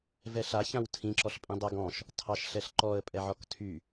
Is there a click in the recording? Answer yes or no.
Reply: yes